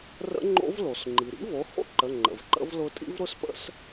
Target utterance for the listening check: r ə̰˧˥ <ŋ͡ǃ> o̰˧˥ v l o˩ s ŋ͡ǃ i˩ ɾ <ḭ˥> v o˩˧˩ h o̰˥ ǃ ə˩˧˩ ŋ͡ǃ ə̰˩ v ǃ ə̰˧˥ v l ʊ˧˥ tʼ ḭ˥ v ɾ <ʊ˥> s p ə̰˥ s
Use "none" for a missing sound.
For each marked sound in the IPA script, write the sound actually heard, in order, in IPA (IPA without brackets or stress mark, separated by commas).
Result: ŋ͡ǃ, ḭ˥, ʊ˥